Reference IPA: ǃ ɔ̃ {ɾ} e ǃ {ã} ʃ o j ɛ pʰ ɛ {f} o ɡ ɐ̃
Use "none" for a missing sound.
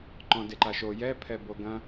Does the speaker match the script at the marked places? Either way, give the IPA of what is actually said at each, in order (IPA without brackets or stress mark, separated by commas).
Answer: d, a, b